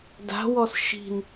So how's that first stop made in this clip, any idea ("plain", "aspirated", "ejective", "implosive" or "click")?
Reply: plain